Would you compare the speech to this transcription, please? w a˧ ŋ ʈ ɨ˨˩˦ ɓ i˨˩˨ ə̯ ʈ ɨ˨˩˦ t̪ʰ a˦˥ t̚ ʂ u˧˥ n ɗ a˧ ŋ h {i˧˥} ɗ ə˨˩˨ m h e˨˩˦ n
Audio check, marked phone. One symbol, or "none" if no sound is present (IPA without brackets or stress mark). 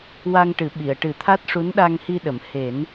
i˧